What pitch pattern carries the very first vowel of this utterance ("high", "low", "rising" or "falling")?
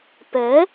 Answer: rising